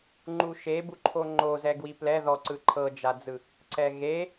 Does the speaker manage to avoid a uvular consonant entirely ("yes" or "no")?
yes